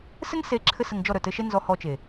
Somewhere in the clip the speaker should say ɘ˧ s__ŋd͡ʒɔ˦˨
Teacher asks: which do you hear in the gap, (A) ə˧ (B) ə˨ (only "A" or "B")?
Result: A